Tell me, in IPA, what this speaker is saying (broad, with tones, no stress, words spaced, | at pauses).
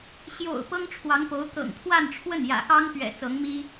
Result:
ɕjo̰˨˩ʊ̯ pɤ˥ŋʈ͡ʂʰwɑ˧˥ŋpo˧˥ʊ̯ kɤ̰˨˩ŋt̪ʰwa˥˧nʈ͡ʂʰwə˥˩n jä̰˨˩xɑ˥ŋpɥɛ̰˨˩ t͡sɤ˧˥ŋmi˥